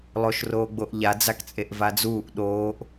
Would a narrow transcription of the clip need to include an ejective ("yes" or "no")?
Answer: yes